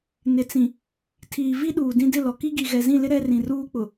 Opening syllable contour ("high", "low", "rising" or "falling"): low